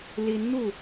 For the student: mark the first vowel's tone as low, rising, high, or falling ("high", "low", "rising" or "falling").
rising